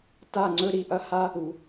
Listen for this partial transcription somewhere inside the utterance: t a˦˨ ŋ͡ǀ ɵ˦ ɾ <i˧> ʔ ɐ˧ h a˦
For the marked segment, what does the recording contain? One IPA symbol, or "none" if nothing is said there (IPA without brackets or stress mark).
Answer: i˧